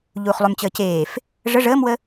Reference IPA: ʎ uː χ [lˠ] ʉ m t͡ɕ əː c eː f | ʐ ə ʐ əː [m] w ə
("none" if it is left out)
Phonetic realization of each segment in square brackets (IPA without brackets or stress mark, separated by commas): lˠ, m